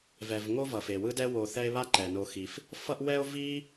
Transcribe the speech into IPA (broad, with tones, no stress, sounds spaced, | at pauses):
v ɛ˨ v ŋ o˦ v ʌ˩ f e˩ w ɯ˦ d ɛ˦ w o˨ θ ɛ˦ e̯ β a˥ ǃ ɛ˩ n o˨ x i˩ f | f ʌ˦ ʔ w ɛ˦ o̯ v i˥